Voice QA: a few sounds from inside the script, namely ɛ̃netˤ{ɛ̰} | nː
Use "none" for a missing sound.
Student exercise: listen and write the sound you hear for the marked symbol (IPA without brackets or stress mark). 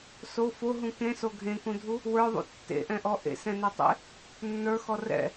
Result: ḛ